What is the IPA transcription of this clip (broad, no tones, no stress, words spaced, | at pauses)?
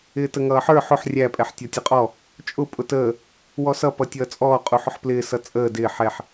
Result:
ɪːtəŋʌːħə˞ ħʊħ rʲæ pʼɛħtʲɔtʲʊqʼɔ | t͡ʃʼʊ pʼʊtəː | wɔsʌ pʌtʲʌːt͡sʼɔː qʼuħʊħplɪː sʌt͡sʼəː dɪː ħɛħ